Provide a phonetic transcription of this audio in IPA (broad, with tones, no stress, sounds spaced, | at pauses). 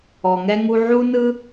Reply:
ɔ˩ ŋ ɛ˥ ŋ u˥ ʕ u˥ n ɯ˥